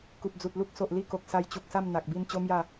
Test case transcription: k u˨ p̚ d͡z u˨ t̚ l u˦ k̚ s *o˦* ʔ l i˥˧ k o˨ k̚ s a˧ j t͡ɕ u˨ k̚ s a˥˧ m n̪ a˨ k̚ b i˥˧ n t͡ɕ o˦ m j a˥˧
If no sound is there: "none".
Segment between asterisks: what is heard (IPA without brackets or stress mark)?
o˨